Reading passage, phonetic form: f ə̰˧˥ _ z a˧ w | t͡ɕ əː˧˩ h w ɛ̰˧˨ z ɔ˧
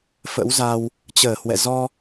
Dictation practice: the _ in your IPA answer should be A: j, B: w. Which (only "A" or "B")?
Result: B